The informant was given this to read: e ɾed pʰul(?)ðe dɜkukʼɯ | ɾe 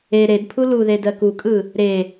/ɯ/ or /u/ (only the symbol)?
u